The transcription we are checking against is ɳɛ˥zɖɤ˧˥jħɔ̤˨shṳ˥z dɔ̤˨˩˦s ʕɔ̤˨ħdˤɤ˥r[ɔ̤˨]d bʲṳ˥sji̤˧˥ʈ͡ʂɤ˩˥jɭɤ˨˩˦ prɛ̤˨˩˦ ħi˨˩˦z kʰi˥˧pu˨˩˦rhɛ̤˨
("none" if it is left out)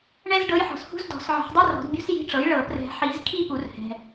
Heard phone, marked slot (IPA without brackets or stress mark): ɔ̤˨˩˦